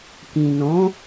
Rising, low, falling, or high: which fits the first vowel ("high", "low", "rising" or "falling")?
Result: low